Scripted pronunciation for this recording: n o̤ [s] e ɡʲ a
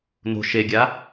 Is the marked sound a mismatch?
yes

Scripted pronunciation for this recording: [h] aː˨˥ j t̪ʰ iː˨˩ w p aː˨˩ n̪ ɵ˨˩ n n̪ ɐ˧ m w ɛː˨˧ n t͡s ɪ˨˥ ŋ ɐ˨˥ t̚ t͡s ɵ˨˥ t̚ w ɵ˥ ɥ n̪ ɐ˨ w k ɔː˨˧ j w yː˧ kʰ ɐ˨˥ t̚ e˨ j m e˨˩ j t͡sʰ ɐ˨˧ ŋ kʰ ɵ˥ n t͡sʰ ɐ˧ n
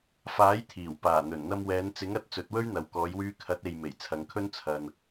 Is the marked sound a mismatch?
yes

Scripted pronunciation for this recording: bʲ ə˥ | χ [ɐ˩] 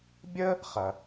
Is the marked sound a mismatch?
no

